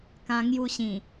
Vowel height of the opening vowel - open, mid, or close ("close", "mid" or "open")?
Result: open